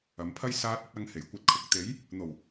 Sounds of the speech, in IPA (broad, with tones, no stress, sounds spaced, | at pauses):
ɐ˨˧ m pʰ ɐ˥ j s aː˧ t̚ ɵ˧ t̚ ɐ˨˧ ŋ h e˨˩ j kʷ ɐ˧ t̚ kʰ ʊ˨˥ k̚ t̪ e˨˥ j | n̪ o˨˩ w